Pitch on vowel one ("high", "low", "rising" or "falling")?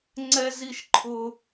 high